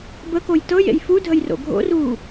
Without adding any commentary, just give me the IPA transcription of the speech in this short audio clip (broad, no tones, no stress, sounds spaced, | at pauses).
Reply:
b ə k o j t ɤ j ḛ j f u dʱ ə j r o̰ ɡʱ o̰ r uː